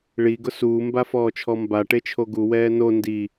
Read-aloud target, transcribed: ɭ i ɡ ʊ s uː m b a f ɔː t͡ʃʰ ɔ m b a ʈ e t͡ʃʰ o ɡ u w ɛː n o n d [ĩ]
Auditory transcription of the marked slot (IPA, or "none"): i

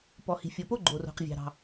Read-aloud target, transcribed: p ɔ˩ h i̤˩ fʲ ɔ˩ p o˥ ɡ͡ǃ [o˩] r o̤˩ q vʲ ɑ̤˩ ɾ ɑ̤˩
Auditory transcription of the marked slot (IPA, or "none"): o˩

